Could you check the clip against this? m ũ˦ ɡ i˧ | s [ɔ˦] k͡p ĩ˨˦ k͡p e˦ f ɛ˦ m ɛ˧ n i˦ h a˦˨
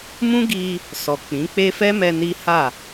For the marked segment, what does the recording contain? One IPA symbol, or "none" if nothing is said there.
ɔ˨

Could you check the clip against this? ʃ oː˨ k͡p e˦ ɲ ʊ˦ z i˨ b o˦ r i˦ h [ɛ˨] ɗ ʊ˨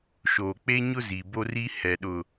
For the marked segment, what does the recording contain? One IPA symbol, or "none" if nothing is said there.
ɛ˨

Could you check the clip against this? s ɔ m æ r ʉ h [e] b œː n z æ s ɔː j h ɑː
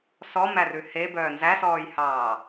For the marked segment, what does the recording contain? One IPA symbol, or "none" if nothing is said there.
e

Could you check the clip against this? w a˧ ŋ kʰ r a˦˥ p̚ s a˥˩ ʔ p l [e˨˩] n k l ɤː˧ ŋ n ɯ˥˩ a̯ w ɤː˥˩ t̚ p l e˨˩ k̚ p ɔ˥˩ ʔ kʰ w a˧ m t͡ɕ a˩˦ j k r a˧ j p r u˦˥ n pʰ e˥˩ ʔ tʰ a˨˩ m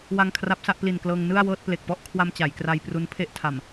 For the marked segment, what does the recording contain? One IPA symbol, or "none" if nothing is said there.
i˨˩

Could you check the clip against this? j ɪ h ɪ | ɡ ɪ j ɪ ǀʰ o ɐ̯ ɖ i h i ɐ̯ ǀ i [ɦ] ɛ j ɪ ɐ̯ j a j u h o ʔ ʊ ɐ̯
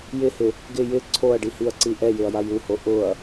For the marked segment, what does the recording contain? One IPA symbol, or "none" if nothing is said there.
ʔ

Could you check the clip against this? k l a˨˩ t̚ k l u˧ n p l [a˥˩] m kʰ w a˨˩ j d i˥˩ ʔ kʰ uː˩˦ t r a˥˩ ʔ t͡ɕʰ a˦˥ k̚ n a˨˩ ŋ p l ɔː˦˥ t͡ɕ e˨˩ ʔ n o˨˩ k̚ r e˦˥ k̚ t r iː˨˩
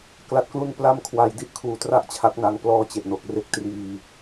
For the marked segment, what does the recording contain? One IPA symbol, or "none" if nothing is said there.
a˧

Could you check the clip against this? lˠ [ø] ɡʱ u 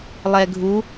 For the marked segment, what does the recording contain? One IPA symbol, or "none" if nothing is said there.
ɛ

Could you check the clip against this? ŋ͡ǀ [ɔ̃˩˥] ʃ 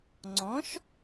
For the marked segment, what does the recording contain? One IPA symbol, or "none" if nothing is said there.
ɔ̃˩˥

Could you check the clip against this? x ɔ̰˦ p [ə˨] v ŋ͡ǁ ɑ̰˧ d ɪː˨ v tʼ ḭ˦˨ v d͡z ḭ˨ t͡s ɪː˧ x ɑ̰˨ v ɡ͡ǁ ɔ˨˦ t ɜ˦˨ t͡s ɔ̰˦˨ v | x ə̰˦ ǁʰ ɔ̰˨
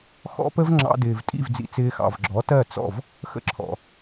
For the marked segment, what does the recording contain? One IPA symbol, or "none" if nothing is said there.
ə˦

